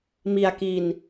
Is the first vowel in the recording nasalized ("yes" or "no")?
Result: no